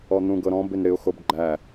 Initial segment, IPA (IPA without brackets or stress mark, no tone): ɔ